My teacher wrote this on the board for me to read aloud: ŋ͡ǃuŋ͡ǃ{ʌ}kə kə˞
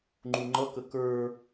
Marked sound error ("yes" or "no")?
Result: no